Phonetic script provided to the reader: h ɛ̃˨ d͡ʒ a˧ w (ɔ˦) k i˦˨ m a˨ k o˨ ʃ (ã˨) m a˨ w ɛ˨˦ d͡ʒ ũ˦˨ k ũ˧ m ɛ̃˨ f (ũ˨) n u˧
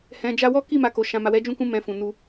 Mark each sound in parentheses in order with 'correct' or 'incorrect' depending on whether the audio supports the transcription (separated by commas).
correct, correct, correct